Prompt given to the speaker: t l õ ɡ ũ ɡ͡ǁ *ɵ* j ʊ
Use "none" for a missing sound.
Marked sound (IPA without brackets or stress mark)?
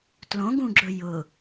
ɵ